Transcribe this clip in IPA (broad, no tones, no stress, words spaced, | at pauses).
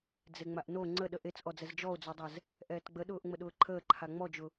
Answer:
d͡zeŋ͡maʔno ŋ͡ǀəɗə ʔet͡sʔɔd͡zɛz d͡ʒɔo̯d͡zodˤɛz | ʔɛːtɡ͡bəɗʊːʔ ŋ͡məɗʊːǃʰəːǃʰa ŋ͡mɔd͡ʒʊ